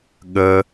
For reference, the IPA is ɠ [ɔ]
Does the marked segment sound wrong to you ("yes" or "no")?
yes